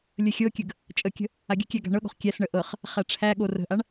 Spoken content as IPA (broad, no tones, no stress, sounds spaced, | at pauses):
lʲ ə xʲ ɤ kʲ ə ɡ | t͡ʃʼ ə kʲ ə̤ | a ɡʲ ə̤ kʲ æ ɡ a̤ ɳ ɤ ɠ o̤ χ kʲ æ s ɳ ə ʔ ɤ χ | χ æ ʈ͡ʂʰ æ ɠ o r ə̤ ʔ a ɳ